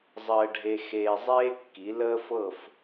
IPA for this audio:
zˤ əː˧ ɖʱ e˧ x eː˧ zˤ eː˥ kː i˩˥ l əː˥ f ɤ˥˩ f

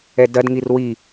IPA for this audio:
ɛ d ɐ d ŋ i r w i

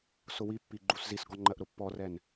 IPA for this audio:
s ʊ w i pː i ɡ͡ǃ u s z i s ɡ ɔ ŋ͡ǃ ɜ ʔ ɾ ʊ pː ɔ r ɛ n

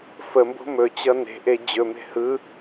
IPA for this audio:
f ə m b o̤ m ɵ t͡ɕ ʌ n e̤ ʔ e d͡ʑ ɵ m e̤ h ɯ

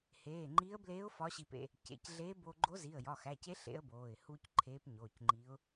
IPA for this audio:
h eː˩˧˩ ŋ͡ǃ iː˧˥ ə̯ b l eː˧˥ ʊ̯ f ɒ˧˥ ɕ i˧ p ḛ˧ | c ḛ˩˧˩ c ɮ e˧˥ b o˧ ɡ͡ǃ o˧˥ z i˩˧˩ ə̯ j ɒ˩˧˩ x æ˩˧˩ c e˧˥ ɬ ḛ˧˥ ə̯ b oː˩˧˩ ɪ̯ h u˧ c ǃʰ eː˧˥ p ɲ oː˩˧˩ c ŋ͡ǃ i˧˥ ʊ̯

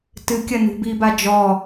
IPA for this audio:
t ɨ kʲ ɐ n ṳ b iː b a d͡ʒ ɔ

